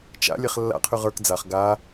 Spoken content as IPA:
t͡ʃ a̰ lʲ ɛ χ lː a̰ qʰ y ʁ ə˞ k d͡z a χ ɡ a

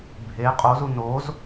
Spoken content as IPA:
bʱ e qʼ o z u n o z

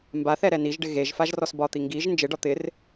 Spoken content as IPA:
m b a θ ɛ ɾ ɛ n i ʒ ɖ ɪ ɣ e ʒ f a ʒ r ɔ s b ɒ t̪ i ŋ ɡ i ʒ n d͡ʒ ɪ ɖ ɒ t̪ ɪ r

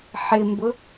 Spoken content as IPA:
ħ ɪ m b ʊ

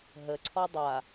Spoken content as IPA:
ɦ ə ǀʰ ɔ dˤ a

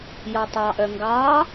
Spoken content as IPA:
j ɔ tˤ ɑ ʔ œ ŋ ɡ ɑ

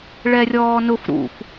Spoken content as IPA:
ɭ ɛ rʲ ɔː n ʊ f ɾ ṵ f

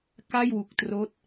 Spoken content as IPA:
k a˥˩ j w u˨˩ k̚ t r oː˦˥ t̚

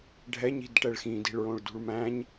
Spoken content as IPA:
ɖʱ ɛ ɲ i̤ d ʈ ɛ ɭ x ĩ d i̤ ɭ ɹ õ ɭ d ṳ ɭ m æ̃ ɲ

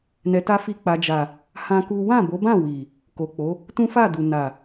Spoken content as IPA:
n ɛ˧ t a˦ f i˦ k͡p a˧ d͡ʒ a˨ | h ã˦ k u˦ w ã˦˨ b o˨˦ b ã˦˨ w i˨ | k o˨ k͡p o˨˦ | t ũ˦ f a˦˨ d u˨ n a˨

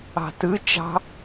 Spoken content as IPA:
ɑ̤ t ɯ t͡ʃ ɑ̤

